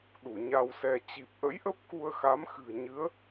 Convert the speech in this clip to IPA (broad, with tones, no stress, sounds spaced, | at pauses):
ɗ u˧˩ ɲ a˧ w s ɛ˧ t͡ɕ i˨˩ p̚ ʔ ə̰˧˥ j ʔ ə˦˥ p̚ k u˧ ə̯ x a˨˦ m x ɨ̤˨˩ ə̯ ɲ ɨ˨˦ ə̯